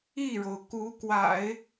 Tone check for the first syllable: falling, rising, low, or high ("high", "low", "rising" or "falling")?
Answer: falling